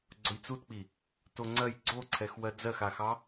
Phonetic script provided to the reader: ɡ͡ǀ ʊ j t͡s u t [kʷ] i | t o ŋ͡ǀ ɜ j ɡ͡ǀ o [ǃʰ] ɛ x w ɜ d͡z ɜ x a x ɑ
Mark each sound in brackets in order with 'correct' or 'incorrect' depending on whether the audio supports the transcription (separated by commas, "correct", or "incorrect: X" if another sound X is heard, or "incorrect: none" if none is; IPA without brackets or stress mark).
incorrect: k͡p, incorrect: ǀʰ